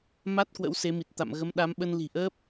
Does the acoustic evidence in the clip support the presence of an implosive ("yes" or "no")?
yes